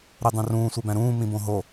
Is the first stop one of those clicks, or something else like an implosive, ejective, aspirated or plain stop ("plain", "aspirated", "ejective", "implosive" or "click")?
plain